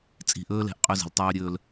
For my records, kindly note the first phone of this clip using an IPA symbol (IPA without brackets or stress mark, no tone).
t͡sʼ